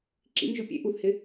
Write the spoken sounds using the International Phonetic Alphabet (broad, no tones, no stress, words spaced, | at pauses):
ǁḭŋʒʊ pʲḛ ʔuθhɪ